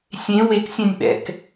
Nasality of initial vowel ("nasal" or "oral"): nasal